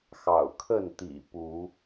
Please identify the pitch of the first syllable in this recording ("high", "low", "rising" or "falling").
low